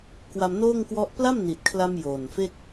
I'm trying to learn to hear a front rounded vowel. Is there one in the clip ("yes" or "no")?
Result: no